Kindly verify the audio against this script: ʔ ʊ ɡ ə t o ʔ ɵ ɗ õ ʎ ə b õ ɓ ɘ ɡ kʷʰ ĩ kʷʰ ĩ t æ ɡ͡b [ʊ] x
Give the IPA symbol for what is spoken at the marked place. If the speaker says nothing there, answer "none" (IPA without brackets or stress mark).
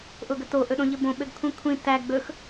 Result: ɵ